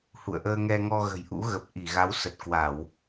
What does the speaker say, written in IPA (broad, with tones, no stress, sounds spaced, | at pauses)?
h ṵ˧˨ ə̯ ʔ əː˧ ŋ ɛ˧ ŋ ɔ˧ ɣ ə̤˨˩ j ʔ ṵ˧˥ ɣ ə˨˩ p̚ ʔ i˧˩ ɣ a˨˦ w s ə˨˩ t̚ k w a˧˩˨ w